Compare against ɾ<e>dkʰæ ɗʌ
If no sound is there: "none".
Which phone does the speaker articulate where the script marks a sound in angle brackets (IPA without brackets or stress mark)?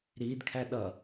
i